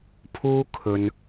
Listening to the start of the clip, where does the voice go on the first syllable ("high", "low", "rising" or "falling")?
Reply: high